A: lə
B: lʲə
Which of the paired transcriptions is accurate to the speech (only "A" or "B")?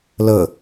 A